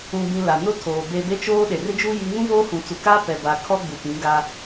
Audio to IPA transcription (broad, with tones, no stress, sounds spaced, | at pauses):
ũ˨ b ĩ˨ l a˨ n ʊ˦ tʰ oː˨ b e˨ b e˦ t͡ʃ oː˦ ɗ e˨ r ɪ˦ d͡ʒ u˦ j i˦ ŋ ũ˦ v oː˦ h ũ˨ t͡s u˨ k a˦ p ɛ˨ b a˨ kʰ ɔ˦ ɡ͡b u˨ p ĩ˨˦ ɡ a˦